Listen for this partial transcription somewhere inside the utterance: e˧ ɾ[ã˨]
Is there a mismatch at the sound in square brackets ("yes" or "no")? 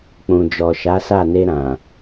no